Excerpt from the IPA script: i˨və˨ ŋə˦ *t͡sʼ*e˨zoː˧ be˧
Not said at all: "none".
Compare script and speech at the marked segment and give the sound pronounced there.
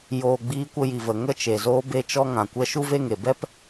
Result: t͡ʃ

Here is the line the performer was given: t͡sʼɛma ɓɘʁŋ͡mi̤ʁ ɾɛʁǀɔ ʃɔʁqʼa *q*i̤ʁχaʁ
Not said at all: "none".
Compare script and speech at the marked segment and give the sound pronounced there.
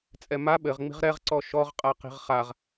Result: q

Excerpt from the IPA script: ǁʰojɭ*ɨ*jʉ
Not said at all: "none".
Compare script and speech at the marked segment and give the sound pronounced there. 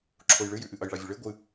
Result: ɨ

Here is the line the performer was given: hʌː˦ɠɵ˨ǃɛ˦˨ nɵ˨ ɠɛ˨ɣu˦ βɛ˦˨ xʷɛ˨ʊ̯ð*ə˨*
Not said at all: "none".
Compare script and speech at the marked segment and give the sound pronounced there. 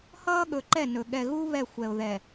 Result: ɛ˨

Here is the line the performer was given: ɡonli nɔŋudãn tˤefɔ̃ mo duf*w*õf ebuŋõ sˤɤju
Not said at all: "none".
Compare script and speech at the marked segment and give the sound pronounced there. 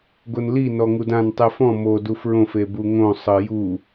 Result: ɹ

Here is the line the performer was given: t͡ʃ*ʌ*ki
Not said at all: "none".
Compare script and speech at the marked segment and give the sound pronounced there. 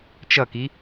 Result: ʌ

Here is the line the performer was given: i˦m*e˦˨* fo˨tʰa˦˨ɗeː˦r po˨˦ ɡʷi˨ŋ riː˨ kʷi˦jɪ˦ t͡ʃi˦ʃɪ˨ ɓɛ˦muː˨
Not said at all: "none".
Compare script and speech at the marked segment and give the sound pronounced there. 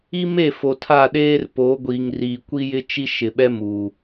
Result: e˦˨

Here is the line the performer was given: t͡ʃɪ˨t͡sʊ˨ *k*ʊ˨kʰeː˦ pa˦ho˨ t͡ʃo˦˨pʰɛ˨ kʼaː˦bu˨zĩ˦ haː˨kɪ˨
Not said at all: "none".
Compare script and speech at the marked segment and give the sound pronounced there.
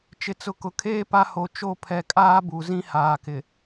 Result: k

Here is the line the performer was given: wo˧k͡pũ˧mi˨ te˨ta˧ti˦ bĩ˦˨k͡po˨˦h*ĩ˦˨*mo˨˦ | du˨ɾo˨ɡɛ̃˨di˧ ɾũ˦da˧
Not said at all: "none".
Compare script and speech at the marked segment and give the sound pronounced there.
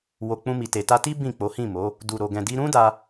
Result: ĩ˦˨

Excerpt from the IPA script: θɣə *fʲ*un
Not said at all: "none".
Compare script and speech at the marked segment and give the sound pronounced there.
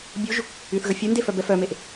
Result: fʲ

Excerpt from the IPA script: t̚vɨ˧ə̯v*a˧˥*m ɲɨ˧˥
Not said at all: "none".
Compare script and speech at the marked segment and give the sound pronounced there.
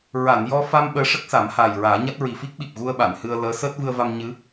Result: a˧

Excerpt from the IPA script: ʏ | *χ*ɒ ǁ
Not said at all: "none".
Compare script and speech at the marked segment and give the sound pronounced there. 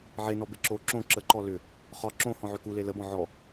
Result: χ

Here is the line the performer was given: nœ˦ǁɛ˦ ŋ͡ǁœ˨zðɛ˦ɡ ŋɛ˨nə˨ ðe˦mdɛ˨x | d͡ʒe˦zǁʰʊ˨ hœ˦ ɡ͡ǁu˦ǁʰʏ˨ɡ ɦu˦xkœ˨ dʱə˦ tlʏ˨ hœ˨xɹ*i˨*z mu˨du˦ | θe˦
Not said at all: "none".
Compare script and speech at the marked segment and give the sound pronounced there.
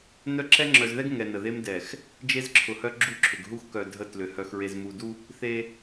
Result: e˨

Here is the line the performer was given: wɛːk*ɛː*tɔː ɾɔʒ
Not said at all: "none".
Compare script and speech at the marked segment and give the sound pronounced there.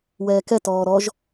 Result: ɛ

